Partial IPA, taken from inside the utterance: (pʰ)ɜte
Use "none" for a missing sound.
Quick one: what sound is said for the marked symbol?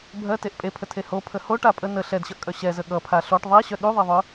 bʱ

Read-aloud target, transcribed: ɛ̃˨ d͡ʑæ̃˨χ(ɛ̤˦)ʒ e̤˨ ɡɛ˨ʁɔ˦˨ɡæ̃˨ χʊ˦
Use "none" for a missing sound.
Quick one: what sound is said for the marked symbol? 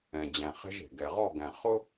ɛ̤˦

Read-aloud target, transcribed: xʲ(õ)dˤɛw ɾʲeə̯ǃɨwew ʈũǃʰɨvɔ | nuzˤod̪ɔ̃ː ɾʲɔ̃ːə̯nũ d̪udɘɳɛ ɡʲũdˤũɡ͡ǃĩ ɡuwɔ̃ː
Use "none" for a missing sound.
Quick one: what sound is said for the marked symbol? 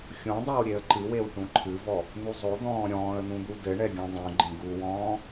õ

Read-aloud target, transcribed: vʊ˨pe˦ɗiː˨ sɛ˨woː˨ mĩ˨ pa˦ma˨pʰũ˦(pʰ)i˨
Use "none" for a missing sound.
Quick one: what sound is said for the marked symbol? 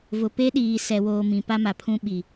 ɓ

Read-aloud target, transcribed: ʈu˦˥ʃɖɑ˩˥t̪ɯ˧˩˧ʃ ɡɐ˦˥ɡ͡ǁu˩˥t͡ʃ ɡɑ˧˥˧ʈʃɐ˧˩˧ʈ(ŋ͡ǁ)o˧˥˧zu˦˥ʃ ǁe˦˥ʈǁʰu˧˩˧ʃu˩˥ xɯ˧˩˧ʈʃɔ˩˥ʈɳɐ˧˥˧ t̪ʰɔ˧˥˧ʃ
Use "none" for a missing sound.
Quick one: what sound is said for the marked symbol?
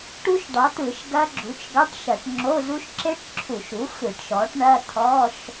ŋ͡ǁ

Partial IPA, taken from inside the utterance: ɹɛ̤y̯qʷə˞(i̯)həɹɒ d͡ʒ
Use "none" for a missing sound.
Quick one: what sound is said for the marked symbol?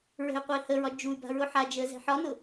i̯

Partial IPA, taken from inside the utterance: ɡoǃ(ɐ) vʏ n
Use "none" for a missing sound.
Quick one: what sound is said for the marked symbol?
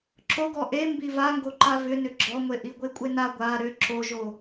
a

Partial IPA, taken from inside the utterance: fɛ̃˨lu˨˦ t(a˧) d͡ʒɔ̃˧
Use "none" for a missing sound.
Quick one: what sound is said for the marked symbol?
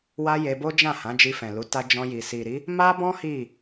a˧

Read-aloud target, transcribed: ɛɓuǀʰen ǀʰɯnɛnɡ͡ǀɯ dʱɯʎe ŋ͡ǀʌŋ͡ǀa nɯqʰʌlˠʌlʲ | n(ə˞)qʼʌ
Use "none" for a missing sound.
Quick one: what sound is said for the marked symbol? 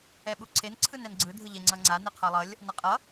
ʌ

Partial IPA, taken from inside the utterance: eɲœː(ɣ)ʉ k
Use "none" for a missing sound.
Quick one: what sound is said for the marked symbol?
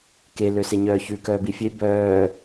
ç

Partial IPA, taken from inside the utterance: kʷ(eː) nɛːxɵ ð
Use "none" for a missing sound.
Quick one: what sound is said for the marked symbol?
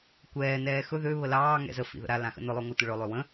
ɛː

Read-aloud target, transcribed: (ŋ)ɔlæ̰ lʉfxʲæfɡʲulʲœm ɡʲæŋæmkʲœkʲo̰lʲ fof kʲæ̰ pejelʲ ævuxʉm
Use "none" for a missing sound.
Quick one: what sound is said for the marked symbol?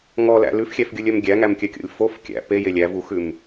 ŋ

